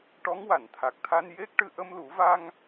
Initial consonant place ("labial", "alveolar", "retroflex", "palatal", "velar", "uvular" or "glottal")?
retroflex